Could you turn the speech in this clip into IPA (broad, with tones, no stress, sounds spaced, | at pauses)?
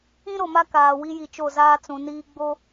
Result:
ĩ˦ ɾ o˨ m a˦ k aː˨ w i˦ j i˨ t͡ʃ o˦˨ z aː˦ t͡s ũ˨ n iː˦ ɡ͡b o˦